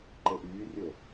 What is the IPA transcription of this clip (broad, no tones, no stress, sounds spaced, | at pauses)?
ǃ e ʔ yː rʲ o